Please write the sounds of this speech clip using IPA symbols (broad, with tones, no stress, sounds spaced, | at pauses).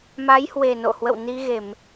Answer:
m a˨˦ j h w e˨˩ n o̰˧˨ h w ə̰˧˨ w n i˧ ɣ e˧˩˨ m